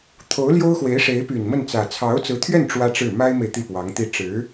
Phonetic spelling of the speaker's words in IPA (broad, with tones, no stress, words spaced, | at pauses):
t̪ʰo˧˥ʊ̯ljo˥ʊ̯ xwe˧˥ɪ̯ʂe˧˥ɪ̯py˨˩n mə˥˩nt͡sä˨˩ t͡sʰɑ˧˥ʊ̯t͡sɹ̩˧˥t̪ʰɥɛ˥˩n ʈ͡ʂwä˥ʈ͡ʂɻ̩˥˩ ma˥ɪ̯me˨ɪ̯ t̪i˥˩pwɑ˧˥ŋt̪i˥˩ ʈ͡ʂɻ̩˧˥